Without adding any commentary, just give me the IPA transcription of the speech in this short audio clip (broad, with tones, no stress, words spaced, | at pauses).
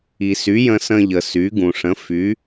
i˩sy˩˥jə̃˧ sə̃˧ʎə˩ sy˩˥ ɡũ˩ ʂə̃˩˥ fy˩˥